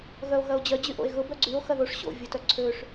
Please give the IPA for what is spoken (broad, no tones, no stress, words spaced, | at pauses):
ɣœo̯ɣɐo̯d͡ʑœ d͡ʑyʔo̰e̯ɣʊ bœɡ͡ǀyo̯ xɐðoʂ ɕo̰ vʲotœǀʰøʂ